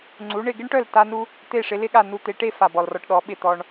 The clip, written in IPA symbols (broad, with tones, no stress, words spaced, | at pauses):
ŋ͡ǀu˩˥ɳɪ˥˩ ɡɪ˥ɳʈœ˥˩lta˧ nu˥ | t̪e˥˩ʂɪ˩˥lɪ˥ɠa˥˩ nu˧t̪e˩˥ʈe˥ fa˩bɔ˩lrɔ˧ʈɗɔ˩˥ ɓɪ˥˩t̪ɔ˧ɳ